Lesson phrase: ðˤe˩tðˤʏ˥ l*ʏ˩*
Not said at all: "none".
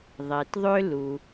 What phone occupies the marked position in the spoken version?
u˩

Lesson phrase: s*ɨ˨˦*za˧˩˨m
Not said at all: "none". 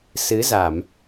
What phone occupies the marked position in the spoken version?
ɨ˨˦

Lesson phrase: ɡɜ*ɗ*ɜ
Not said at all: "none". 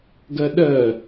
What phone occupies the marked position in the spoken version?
ɗ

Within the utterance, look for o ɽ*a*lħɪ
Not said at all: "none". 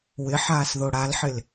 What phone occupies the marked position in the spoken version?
a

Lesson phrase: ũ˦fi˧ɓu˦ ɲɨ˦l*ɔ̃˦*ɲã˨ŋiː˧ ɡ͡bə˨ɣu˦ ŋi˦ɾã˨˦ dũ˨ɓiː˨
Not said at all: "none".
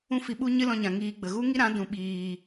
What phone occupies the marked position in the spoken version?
ɔ̃˧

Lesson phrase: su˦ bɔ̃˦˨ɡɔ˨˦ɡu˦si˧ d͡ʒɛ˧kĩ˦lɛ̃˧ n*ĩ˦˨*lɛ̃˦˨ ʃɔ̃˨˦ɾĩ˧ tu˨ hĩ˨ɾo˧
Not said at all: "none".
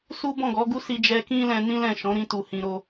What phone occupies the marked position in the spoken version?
ĩ˦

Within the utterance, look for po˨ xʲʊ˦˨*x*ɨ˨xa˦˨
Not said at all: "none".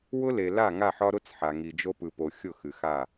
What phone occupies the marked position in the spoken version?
x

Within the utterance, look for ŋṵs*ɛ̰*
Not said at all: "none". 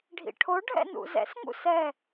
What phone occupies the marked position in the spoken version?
ɛ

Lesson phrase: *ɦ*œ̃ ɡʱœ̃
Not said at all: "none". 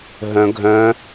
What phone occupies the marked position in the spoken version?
ɦ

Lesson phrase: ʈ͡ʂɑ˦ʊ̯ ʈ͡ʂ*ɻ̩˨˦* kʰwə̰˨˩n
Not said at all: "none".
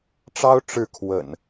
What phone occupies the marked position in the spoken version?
ɻ̩˥˨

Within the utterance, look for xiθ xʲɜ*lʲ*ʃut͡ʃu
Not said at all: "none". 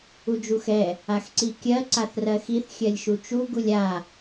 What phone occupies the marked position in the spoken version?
lʲ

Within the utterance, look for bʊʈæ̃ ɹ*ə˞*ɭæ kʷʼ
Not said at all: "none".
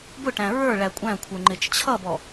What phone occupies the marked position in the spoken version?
ə˞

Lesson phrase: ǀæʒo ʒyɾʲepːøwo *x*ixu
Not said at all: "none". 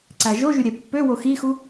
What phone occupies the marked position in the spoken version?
x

